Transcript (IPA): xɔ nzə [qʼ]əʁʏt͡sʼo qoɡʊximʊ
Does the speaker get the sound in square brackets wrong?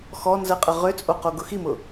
no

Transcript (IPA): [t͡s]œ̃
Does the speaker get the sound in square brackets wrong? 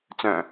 no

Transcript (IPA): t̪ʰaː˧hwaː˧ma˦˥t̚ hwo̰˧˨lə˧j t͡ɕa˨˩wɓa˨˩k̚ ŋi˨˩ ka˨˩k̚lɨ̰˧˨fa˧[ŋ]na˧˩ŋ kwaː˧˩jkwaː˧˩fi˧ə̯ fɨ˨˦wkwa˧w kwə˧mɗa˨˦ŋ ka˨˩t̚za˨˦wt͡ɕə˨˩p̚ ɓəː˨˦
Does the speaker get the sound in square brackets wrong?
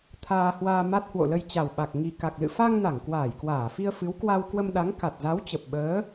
no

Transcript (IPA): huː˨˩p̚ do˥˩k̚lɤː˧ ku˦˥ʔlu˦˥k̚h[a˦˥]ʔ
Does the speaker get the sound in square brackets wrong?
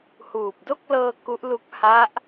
no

